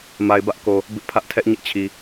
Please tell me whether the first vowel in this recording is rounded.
no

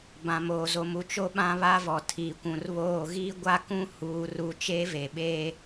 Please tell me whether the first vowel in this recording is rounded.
no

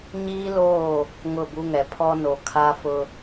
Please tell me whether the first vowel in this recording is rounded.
no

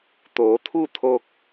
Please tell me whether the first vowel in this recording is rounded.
yes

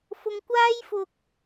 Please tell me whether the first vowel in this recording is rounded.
yes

